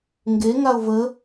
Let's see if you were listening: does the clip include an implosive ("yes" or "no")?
no